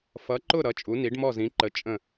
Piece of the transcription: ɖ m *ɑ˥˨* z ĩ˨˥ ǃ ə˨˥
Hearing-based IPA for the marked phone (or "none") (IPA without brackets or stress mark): ɔ˥˨